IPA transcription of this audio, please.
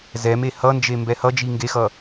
z ɛ m e h ʌ n d͡ʒ e m b ɛ h ʌ d͡ʒ i ŋ ɡ e x ʌ

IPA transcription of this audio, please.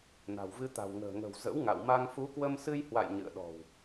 n a̤˨˩ w v ɨ˧ t̪ a̤˨˩ w ŋ ə̤ː˨˩ ŋ ə̤˨˩ w z ə̰˧˥ w ŋ a̰˧˨ w m a˧ ŋ f u˨˦ k w ə˧ m s ɨ˧ j h w a̰˧˨ j ɲ ɨ̰˧˨ ə̯ ɗ ɔ̤˨˩ w

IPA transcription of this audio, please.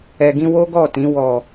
ɛ˨ ɡ ĩ˧ w o˦ ɡ ɔ˦˨ t ĩ˨˦ w ɔ˦˨

